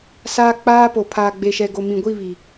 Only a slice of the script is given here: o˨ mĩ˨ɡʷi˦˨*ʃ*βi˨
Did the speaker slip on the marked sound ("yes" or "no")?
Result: yes